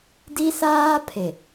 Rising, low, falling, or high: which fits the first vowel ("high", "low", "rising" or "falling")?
high